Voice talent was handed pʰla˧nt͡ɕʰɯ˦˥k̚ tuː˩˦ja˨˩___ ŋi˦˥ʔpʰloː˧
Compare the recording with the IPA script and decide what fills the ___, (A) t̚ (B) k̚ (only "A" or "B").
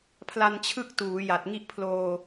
A